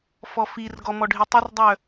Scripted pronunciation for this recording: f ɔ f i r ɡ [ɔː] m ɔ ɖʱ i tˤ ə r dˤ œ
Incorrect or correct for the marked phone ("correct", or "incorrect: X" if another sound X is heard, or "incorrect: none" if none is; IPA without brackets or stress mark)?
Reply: incorrect: ɔ